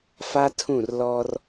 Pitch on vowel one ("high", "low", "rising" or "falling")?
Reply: high